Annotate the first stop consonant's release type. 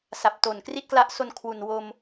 plain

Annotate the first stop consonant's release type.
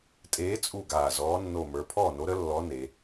ejective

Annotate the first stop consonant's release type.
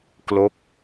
plain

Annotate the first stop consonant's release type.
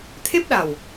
aspirated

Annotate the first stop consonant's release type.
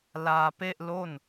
plain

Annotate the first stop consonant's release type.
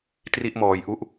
plain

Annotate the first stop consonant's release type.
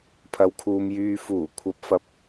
aspirated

